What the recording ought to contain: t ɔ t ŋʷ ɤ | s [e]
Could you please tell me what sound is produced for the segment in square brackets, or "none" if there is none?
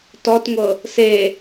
e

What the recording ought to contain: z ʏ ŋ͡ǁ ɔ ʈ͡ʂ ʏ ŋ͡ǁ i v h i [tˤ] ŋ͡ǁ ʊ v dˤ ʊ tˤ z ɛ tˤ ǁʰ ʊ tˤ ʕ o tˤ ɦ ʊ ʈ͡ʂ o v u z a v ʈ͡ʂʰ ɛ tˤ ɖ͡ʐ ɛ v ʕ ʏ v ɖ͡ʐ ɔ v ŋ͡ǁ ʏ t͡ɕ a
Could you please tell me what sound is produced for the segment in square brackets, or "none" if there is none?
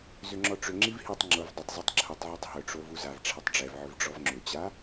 tˤ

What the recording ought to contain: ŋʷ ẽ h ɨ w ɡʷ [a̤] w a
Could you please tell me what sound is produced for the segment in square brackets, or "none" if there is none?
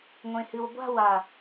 a̤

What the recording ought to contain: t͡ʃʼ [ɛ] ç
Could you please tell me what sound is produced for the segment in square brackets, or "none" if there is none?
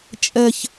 ɛ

